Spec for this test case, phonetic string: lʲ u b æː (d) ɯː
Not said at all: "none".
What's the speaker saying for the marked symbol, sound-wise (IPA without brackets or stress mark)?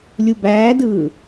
d